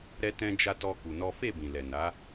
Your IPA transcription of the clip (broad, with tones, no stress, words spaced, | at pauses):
ɾɛ˦tɛ̃˦d͡ʒa˦ tɔ˦ku˧nɔ˦ fe˦˨bĩ˨lɛ˨ na˨˦